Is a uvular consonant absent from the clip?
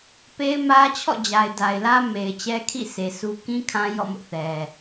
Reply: yes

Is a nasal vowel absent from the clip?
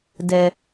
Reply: yes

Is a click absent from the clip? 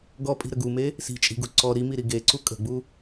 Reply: no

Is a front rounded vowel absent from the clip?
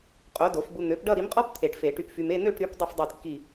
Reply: no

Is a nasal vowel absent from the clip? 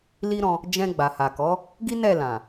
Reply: no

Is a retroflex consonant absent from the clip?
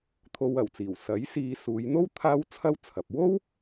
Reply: yes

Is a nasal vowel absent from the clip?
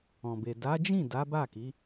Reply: no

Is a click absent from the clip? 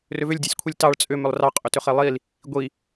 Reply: yes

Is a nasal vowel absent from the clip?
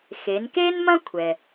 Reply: no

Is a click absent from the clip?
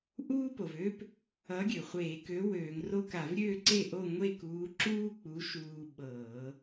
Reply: no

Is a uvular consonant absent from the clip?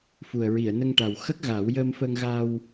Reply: yes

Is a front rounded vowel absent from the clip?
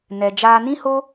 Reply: yes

